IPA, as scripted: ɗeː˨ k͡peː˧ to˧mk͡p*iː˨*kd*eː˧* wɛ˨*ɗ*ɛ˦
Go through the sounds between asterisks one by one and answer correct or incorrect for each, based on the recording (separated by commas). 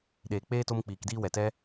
correct, incorrect, incorrect